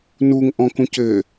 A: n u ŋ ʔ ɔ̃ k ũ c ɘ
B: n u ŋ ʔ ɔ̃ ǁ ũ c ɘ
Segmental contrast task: A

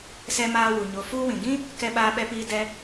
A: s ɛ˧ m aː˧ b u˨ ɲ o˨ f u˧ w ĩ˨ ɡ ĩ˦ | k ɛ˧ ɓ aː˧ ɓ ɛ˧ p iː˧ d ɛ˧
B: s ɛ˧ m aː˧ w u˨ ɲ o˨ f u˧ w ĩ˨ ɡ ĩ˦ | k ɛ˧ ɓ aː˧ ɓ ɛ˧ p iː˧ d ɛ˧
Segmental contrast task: B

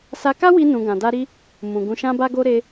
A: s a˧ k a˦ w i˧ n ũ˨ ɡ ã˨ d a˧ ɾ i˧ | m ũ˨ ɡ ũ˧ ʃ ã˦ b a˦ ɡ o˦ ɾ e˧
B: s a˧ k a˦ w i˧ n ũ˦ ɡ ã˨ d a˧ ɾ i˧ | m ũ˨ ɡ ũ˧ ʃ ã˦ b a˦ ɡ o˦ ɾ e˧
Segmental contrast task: A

